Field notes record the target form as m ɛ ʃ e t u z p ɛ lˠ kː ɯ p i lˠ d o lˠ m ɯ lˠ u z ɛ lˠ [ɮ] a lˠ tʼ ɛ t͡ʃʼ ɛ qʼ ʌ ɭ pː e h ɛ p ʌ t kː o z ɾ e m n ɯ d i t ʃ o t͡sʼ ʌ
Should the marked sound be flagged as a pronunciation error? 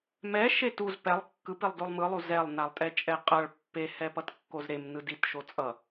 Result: yes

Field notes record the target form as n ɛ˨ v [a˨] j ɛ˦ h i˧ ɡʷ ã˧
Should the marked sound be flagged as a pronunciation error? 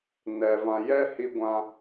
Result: yes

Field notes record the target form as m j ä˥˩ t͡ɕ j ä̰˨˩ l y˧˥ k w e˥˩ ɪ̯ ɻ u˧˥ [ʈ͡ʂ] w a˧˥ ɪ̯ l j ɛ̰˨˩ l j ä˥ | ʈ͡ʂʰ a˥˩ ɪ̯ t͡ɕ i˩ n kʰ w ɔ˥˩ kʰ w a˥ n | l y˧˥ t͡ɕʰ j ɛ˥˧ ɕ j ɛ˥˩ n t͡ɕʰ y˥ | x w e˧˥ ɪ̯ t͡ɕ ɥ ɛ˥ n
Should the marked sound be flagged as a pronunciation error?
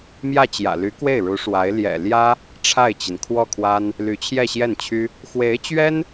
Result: yes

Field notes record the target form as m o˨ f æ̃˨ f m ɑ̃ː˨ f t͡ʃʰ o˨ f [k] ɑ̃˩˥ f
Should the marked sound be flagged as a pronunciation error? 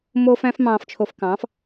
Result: no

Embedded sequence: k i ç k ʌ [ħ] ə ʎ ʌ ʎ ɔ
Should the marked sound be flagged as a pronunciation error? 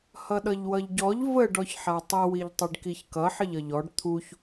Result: no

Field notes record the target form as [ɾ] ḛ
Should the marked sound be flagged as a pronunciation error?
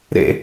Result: no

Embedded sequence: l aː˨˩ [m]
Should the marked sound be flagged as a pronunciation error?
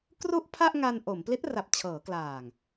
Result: yes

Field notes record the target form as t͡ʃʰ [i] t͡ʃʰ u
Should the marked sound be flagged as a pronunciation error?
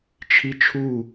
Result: no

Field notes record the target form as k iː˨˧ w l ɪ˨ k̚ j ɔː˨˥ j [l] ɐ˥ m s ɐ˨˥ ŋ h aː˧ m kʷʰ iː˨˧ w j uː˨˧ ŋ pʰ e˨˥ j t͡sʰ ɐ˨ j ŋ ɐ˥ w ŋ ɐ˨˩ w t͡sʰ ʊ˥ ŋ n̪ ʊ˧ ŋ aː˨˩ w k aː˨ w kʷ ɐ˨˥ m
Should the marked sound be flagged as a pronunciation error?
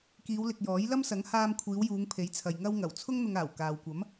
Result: no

